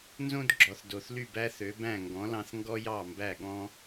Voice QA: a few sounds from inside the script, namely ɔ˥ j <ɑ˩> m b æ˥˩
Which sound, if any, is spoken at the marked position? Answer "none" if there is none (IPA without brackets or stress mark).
ɑ˥˩